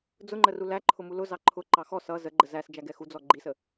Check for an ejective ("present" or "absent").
absent